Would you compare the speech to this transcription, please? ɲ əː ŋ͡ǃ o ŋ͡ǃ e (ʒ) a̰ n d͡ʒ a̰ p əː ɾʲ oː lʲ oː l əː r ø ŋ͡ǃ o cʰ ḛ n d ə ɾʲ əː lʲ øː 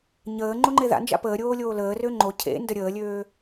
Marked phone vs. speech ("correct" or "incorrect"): incorrect